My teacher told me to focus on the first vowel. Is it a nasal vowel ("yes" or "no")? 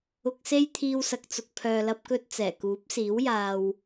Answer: no